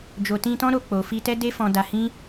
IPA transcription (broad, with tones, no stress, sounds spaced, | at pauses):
d͡ʒ o˨ t ĩ˧ t ɔ̃˦ ɾ o˧ k͡p o˨ f i˧ t ɛ˦ d e˦ f ɔ̃˧ d a˧ h ĩ˦